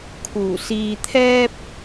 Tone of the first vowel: low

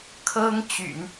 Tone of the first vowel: high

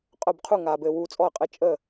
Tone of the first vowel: falling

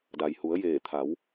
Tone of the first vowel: low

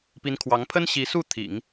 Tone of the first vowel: rising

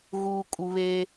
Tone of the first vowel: low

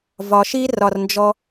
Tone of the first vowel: low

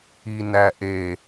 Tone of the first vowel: low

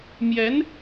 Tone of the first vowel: rising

